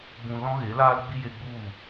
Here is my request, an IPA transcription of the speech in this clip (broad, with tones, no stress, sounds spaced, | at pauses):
b ũ˨ l ɔ̃˦ ɣ e˨˦ l aː˦ l ɡ͡b i˦ j e˧ ɡ͡b u˦˨